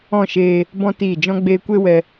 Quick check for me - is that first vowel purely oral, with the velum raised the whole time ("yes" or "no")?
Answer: no